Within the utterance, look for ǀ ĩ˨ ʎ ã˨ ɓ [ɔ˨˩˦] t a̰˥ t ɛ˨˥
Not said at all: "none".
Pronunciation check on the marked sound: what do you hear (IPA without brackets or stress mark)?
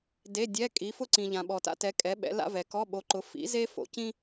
ɔ˨